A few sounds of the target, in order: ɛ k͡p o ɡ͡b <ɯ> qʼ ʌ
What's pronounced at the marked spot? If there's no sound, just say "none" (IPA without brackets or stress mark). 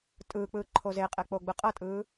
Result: ɯ